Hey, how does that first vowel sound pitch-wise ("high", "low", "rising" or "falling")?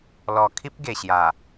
low